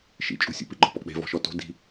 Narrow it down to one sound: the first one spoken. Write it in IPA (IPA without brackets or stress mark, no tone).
ʃ